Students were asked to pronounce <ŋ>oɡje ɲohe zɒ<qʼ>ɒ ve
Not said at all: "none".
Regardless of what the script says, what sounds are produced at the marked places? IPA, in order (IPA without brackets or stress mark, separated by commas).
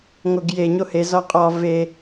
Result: ŋ, qʼ